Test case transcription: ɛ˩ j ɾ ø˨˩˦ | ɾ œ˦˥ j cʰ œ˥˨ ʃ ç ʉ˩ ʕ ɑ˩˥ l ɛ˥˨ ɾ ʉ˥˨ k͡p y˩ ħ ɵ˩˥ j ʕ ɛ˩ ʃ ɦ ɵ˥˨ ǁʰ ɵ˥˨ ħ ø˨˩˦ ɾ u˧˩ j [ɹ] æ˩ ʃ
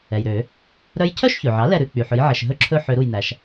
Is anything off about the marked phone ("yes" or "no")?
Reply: yes